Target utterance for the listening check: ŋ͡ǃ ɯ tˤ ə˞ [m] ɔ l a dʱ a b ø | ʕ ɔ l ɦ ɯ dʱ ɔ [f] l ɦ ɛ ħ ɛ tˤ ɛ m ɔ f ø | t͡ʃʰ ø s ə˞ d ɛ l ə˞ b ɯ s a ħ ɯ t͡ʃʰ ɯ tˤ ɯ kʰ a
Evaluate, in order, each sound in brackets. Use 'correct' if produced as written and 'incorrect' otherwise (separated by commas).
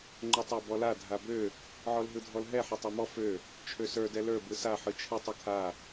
incorrect, incorrect